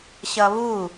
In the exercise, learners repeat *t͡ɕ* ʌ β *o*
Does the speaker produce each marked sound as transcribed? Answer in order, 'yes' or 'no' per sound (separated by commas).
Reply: no, no